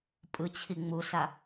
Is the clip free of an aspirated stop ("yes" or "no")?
no